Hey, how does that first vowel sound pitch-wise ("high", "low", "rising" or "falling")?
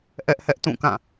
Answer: high